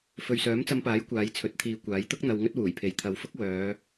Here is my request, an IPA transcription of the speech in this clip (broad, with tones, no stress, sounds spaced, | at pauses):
f ɵ˨ ɥ s œː˨˥ m t͡s ɐ˧ m p aː˨˥ j kʷ aː˨˧ j t͡sʰ ɵ˨˥ t̚ t̪ʰ iː˨˧ kʷ aː˨˥ j t̪ ʊ˥ k̚ n̪ ɐ˧ w ŋ ɵ˥ t̚ w uː˨˩ j pʰ e˨ j t̪ʰ ɐ˨ w f ʊ˥ k̚ w œː˨˧